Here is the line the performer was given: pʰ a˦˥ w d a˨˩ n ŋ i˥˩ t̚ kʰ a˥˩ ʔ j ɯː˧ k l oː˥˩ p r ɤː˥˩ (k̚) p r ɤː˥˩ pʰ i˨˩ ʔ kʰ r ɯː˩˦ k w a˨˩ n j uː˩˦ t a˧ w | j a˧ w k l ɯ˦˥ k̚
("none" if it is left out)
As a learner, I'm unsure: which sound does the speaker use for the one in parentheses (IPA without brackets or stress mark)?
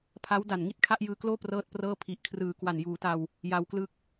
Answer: t̚